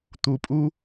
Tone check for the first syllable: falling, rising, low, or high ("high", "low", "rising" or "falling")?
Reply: low